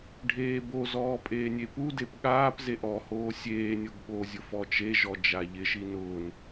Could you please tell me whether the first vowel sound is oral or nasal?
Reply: oral